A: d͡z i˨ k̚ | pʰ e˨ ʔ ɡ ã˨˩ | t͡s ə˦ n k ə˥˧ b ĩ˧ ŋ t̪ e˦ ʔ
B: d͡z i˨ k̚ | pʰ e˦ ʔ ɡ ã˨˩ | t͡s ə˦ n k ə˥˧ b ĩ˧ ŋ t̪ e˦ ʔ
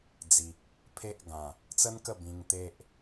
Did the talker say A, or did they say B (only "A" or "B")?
B